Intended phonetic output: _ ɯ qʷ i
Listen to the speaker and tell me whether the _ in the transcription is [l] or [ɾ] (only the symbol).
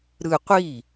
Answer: ɾ